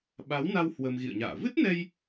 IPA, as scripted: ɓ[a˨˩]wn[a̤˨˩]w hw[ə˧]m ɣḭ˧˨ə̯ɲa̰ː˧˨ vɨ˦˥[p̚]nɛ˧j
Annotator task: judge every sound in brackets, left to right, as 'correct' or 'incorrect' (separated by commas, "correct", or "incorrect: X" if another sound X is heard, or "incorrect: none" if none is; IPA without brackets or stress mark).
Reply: incorrect: a˨˦, incorrect: a˧, correct, incorrect: t̚